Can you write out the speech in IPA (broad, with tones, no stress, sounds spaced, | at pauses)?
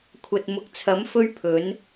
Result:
kʷʰ ɐ˨ t̚ m ʊ˨ k̚ t͡sʰ ɐ˨˥ m f ɵ˥ ɥ pʰ ɵ˨˥ n